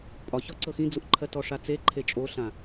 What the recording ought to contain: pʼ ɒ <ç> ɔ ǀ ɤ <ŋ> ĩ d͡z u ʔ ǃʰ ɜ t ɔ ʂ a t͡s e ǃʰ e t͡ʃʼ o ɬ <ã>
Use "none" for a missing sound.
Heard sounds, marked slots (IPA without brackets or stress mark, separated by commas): ç, x, ã